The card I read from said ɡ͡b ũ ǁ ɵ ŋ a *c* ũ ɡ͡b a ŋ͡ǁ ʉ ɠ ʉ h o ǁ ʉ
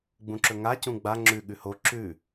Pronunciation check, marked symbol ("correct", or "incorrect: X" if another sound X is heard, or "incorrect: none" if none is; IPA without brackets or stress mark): correct